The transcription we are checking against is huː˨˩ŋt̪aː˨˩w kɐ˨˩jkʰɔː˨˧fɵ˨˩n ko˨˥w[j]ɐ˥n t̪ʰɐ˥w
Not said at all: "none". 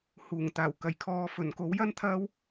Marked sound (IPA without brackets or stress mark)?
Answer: j